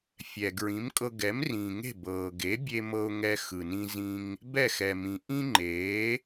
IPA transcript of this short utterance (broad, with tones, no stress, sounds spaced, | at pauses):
fʲ ɛ˩ ɡ ɹ ĩ˩˥ m kʼ ɤ˧ ɡ ɛ˩˥ m r ĩː˩ ŋ e̤˥˩ b ɤː˩ ɡ e˩˥ bʲ e˧ m ɤ˧ ʊ̯ ŋ ɛ˧ x ɯ˩ n ĩ˧ z ĩ˧ ŋ | b ɛ˥˩ x ɛ˩ m ĩ˩ ʔ ĩ˥ ŋ͡ǃ eː˩˥